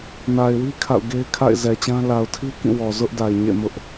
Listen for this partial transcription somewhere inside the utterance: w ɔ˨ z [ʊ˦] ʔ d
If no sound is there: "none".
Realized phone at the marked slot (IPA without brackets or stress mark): ʊ˦